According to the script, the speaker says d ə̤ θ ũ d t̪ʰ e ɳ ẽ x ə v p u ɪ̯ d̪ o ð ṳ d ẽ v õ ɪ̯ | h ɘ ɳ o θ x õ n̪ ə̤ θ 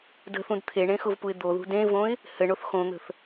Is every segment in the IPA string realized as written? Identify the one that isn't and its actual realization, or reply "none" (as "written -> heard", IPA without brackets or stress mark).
ə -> ʊ